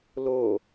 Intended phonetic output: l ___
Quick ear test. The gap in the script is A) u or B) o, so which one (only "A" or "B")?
B